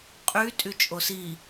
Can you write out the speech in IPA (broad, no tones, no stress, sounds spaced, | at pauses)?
qʼ y tʼ y t͡ʃʼ o s i